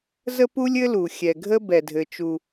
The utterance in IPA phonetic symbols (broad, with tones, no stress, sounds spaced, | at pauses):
z ə˥ p u˥ lʲ ɘ˥ l u˩ xʲ ɛ˩ ɡʱ ə˥ b ɛ˩ dʱ ɘ˩ t͡ʃ u˩